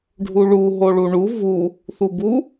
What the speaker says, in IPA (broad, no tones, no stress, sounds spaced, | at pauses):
ɖʱ u ɭ u ɦ o ɭ u ɳ u v u | θ u b u